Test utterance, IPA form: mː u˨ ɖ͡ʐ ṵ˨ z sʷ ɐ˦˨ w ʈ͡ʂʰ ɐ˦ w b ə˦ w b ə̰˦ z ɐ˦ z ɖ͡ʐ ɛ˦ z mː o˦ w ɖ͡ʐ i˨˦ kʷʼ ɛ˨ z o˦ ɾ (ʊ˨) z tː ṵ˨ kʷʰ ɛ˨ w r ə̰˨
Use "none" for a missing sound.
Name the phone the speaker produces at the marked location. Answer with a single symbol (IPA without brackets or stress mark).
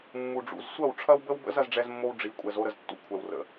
ə˨